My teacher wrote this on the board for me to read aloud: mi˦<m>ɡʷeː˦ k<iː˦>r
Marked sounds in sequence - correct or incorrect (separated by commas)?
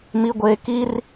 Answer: incorrect, incorrect